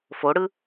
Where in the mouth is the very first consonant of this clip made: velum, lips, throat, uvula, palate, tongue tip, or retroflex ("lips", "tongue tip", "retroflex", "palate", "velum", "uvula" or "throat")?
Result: lips